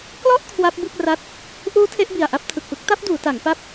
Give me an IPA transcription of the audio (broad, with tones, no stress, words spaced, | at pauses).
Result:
klɔ˥˩ʔ kʰwa˦˥p̚bɯ˥˩k̚ ra˥˩t̚ | ʔuː˦˥ tʰe˦˥ʔbi˨˩a̯ʔa˥˩p̚ tʰɯ˨˩k̚pɯ˦˥k̚ ta˦˥p̚duː˩˦ta˩˦ŋ pa˦˥p̚